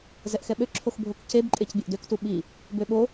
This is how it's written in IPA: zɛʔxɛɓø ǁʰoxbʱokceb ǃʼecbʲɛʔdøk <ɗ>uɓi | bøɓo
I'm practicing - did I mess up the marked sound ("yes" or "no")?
yes